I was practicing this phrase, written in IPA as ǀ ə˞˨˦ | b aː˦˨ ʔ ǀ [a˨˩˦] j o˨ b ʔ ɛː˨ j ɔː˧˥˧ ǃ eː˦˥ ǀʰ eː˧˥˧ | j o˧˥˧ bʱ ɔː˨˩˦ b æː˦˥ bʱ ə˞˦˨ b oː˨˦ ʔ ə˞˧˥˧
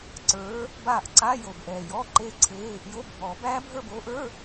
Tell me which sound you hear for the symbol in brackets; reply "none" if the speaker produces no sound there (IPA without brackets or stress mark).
a˧˥˧